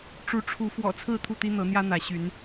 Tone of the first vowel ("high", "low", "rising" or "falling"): rising